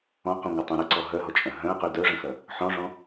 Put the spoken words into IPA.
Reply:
ɔ̃ q ũ ŋʷ ɐ tˤ ũ ɾ ə ǀ ɔ ɦ œ ɦ ɔ t͡ʃʼ œ̃ ɦ œ̃ ə̯ q y d œ ʐ ə̃ x ɐ | ħ ɔ̃ ʐ ɔ̃

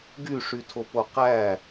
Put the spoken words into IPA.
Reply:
ɡ y ʂ y tʰ o p o q æ

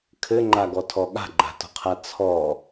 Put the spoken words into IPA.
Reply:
kʰ ɘ ŋ͡ǃ a ɡ ɔ tʰ ɔ ɠ a̤ ɡ͡ǃ a̤ t ɔ̤ qʰ a t͡sʰ ɔ

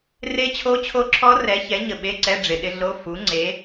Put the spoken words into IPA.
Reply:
r e˦˥ t͡ɕʰ o˦˥ t͡ɕʰ o˦˥ ǁʰ ɔ˦˥ r ɛ˨˥ ç ɛ˨˥ ɲ ə˨ ɓ e˧˥˧ ǀ ɛ˧˥˧ ɖ͡ʐ ɪ˨ ɗ ɪ˦˥ ɮ o˧˥˧ f u˨˥ ŋ͡ǀ e˨˥

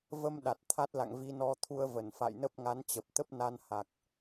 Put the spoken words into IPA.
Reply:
v ə˧ m ɗ a˨˩ t̚ t̪ʰ a˦˥ t̚ l a̰˧˨ ŋ v i˧ n ɔ˧ t̪ʰ u˧ ə̯ v ə˧˩ n f a̰˧˨ j n ə˦˥ p̚ ŋ a˨˦ n t͡ɕ ə˨˩ p̚ t̪ ə˦˥ p̚ n a˧ n h a˨˩ k̚

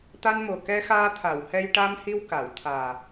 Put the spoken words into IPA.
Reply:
t̪ a˧ n m o˨˩ k ɛ˧ x aː˧ t̪ʰ a˨˩˨ w h ɛ˧ j ʈ a˧ m h i˧ w k a˨˩˨ w t̪ʰ aː˨˩

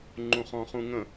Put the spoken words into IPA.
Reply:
ŋ͡ǃ ũ χ ɔ̃ χ ũ ŋ ə̃

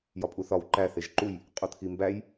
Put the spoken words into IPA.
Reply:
j ɒ pʼ u θ ɒ w ǃ æ θ e ʒ ǃ u j | qʼ u t̪ʰ i m b æ j

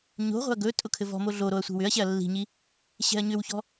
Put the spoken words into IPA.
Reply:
ɲ o̤ ʁʷ ɛ̤ ɐ̯ ɡ ɵ tʼ ʊ kʰ ɘ v ɔ̤ m o ɮ o ɾ o ɐ̯ sʷ i̤ w ʏ ɐ̯ ɕ ɛ ɐ̯ lː i̤ ɲ i | ɕ ɛ̤ ɐ̯ ɲ ʏ w ç ɔ̤

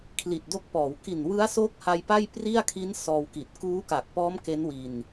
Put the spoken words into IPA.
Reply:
kʰ l i˨˩ t̚ d o˦˥ k̚ p ɔː˩˦ w k i˨˩ n w ɯ˦˥ a̯ s o˦˥ k̚ h a˧ j p a˥˩ j p r i˥˩ a̯ kʰ i˦˥ n s ɔː˧ w k i˨˩ t̚ k uː˦˥ k a˨˩ k̚ p ɔː˦˥ m k e˦˥ n w i˧ n

